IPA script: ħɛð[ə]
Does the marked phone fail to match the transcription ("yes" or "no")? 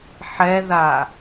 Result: yes